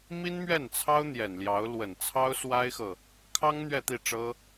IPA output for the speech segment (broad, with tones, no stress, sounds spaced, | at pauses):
m i˥ n m ɥ ɛ˥˩ n t͡sʰ ɑ˥ ʊ̯ n̪ j ɛ˨˩ n l j ɑ˧˥ ʊ̯ l w ə˨˩ n t͡sʰ ɑ˥ ʊ̯ s w a˥ ɪ̯ x ɤ˨ | kʰ ɑ˥ ŋ n̪ ɥ ɛ˥˧ t̪ i˥˩ ʈ͡ʂ ɤ˥